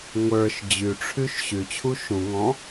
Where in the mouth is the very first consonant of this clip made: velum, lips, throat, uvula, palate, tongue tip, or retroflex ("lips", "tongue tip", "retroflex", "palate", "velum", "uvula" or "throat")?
velum